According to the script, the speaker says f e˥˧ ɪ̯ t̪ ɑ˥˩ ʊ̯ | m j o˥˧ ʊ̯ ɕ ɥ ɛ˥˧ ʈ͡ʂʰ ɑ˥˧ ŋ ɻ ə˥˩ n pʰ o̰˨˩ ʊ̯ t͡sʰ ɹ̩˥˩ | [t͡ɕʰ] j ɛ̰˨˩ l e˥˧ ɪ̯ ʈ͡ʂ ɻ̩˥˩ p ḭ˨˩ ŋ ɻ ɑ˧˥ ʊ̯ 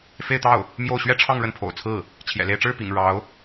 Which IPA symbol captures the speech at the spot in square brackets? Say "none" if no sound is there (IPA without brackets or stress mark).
t͡ɕʰ